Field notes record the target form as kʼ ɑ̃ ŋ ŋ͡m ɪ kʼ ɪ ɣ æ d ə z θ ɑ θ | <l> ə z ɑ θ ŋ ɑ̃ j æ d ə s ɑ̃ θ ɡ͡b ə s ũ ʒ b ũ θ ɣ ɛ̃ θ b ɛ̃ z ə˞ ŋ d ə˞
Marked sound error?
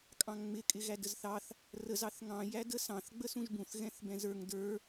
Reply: yes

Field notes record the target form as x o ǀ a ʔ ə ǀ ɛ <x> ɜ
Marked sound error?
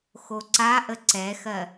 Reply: no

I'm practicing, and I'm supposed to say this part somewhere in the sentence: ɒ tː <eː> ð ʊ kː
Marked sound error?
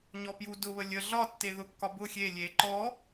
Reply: yes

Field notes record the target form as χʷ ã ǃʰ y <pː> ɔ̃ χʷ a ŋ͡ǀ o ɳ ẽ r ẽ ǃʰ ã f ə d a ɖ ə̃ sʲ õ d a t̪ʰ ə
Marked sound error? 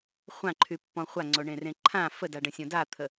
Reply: no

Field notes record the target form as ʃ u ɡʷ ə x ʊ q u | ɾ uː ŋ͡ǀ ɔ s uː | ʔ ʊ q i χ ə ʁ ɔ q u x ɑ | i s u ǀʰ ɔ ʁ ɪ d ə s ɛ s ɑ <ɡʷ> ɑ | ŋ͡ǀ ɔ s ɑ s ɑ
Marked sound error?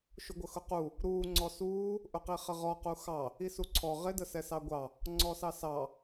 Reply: no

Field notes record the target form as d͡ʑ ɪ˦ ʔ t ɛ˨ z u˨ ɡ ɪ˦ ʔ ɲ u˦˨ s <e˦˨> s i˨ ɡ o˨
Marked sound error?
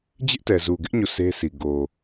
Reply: yes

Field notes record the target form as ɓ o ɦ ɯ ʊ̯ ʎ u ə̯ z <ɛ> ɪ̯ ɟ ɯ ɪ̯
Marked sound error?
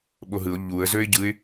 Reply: yes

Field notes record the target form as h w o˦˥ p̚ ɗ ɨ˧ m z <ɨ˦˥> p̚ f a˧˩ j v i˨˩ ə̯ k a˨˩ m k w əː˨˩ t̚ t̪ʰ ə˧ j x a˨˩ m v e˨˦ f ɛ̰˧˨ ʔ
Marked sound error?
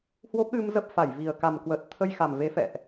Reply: yes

